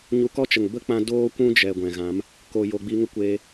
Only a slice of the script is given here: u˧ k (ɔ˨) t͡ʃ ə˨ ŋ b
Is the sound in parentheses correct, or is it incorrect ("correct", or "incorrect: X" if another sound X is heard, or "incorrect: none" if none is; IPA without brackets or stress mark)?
incorrect: ɔ˦